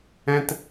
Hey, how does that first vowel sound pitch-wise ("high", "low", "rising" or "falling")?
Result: high